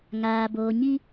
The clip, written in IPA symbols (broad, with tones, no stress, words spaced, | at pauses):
ŋaː˨boː˨ɲi˦